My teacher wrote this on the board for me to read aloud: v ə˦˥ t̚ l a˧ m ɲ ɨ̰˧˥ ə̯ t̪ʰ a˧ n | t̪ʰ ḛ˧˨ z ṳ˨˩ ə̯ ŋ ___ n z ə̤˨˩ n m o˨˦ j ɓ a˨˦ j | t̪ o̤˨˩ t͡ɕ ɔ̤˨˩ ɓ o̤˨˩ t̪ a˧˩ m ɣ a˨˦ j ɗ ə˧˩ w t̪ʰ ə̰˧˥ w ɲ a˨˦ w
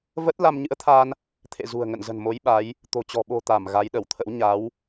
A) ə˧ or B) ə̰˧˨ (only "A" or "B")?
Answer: B